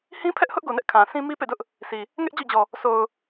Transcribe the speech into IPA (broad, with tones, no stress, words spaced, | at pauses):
hĩ˦pʰɛ˦ʔhʊ˦ʔɡo˨ nɛ˦ʔkʰã˨sĩ˦ mi˦pḛ˦˨dʊ˦ʔ | sʰi˨ | ŋɛ˦ʔ d͡ʑɔ̰˦˨d͡ʑɔ˨ | sʰo˨ʊ̯